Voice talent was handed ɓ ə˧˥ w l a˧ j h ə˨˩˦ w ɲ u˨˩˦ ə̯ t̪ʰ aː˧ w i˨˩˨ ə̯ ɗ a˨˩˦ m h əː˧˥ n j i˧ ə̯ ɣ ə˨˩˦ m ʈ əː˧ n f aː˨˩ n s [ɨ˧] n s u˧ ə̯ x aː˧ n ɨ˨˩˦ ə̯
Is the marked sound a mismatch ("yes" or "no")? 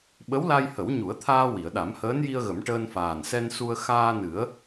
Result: yes